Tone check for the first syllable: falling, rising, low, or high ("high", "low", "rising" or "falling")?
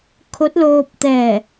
rising